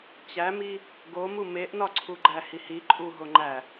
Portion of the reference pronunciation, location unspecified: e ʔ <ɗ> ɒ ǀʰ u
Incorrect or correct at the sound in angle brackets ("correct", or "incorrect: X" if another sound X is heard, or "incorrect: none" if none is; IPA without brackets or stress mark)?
incorrect: n